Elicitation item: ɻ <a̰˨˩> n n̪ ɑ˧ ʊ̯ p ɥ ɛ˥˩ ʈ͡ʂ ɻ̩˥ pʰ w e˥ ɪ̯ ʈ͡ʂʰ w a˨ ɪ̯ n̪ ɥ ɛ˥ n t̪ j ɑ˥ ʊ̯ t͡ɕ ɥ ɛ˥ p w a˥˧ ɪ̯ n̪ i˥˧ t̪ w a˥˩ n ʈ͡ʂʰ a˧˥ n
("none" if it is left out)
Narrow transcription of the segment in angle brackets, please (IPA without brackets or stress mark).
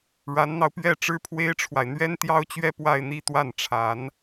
a˧˥